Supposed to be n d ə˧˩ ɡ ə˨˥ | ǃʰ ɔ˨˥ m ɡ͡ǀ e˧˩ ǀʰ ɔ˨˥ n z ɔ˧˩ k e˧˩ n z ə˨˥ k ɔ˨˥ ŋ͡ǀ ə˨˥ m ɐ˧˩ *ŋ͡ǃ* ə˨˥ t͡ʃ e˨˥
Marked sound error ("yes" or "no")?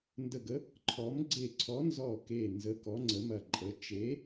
yes